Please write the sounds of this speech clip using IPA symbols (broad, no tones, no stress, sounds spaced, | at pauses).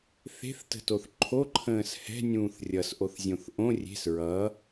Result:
θ e̤ θ t ə̤ t o θ ǃʰ o ǃʰ ə̃ː s h ɛ̤ nʲ ũː θ rʲ ʌ s ʔ o θ zʲ õ θ ʔ õ rʲ e̤ s ɹ ʌ